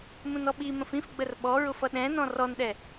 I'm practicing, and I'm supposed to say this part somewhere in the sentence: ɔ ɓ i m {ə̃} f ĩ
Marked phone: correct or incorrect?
correct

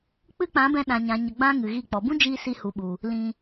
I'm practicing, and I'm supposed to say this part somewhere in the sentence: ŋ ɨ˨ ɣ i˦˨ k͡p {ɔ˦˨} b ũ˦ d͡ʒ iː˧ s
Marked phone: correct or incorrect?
incorrect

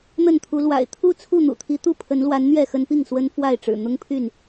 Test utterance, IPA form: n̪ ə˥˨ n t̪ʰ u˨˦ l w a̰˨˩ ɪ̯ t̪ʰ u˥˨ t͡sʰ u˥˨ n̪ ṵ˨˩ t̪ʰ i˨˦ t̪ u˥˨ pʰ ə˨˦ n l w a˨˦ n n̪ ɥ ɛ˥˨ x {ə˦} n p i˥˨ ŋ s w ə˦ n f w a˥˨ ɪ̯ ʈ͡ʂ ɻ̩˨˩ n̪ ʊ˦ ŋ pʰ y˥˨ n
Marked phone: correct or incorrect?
correct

